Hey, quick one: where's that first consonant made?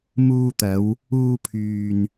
lips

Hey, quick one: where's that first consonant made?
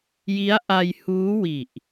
palate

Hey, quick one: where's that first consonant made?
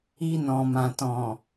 tongue tip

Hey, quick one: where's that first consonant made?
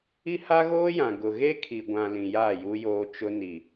throat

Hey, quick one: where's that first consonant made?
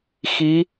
velum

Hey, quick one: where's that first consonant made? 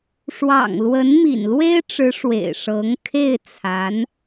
retroflex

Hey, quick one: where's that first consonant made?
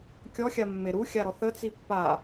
velum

